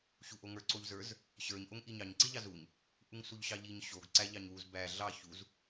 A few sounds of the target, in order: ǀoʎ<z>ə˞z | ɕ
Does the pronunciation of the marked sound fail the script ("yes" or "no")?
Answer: no